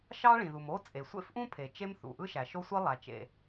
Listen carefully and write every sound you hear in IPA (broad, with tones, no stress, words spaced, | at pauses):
ʃɑ˥ ɭĩ˩ðu˩mo˥ t͡sʼe˩sʷḛ˥fʔũ˥pʰe˩ t͡ʃe˥mθṵ˩ ʔɯ˥ʃæ˩ʃo˥sʷi˥ lˠæ˩t͡ʃḛ˩